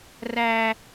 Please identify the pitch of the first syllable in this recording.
high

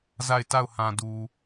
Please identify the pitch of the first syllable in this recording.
falling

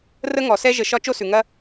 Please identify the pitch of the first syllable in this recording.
high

